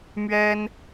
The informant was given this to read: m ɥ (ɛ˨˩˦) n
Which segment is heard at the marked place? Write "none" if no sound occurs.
ɛ˥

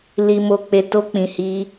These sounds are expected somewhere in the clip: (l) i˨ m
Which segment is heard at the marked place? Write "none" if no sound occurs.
l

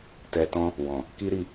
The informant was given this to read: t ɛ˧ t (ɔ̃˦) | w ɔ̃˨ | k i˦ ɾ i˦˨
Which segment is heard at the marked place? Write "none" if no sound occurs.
ɔ̃˦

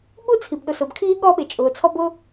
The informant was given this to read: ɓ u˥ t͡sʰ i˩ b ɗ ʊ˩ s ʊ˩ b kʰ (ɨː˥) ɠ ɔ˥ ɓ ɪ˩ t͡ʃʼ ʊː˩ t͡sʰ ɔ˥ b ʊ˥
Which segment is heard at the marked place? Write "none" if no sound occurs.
iː˥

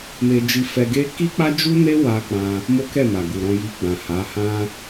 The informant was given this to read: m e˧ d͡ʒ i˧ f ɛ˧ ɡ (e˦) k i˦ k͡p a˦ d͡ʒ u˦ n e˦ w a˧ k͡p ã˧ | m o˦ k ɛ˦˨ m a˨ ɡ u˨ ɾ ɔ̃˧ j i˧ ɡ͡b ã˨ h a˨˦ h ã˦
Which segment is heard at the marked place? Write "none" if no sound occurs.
e˦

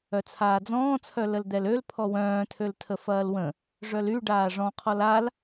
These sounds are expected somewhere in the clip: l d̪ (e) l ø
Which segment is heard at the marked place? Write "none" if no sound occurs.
ɛ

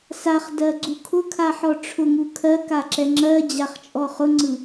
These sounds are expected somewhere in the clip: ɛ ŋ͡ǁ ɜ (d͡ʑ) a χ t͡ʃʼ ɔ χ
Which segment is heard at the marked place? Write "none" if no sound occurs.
d͡ʑ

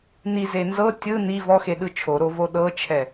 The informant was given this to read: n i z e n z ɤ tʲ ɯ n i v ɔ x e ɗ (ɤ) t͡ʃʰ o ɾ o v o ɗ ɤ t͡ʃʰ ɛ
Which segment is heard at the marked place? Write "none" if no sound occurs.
ɯ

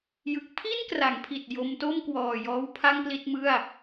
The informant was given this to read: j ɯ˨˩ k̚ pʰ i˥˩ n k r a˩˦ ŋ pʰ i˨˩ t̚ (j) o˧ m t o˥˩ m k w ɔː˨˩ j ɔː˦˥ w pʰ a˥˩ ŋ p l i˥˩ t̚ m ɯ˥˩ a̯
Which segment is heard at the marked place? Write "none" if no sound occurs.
j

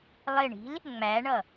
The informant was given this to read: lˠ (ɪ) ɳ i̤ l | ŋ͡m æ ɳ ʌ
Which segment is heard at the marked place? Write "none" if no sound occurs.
ɪ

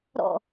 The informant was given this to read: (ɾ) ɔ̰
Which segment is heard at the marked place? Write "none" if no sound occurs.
ɾ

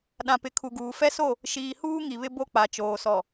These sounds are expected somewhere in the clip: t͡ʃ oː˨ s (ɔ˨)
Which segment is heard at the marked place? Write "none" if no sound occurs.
ɔ˨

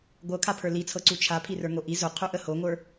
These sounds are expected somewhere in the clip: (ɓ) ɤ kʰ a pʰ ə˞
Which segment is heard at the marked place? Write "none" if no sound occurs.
ɡʷ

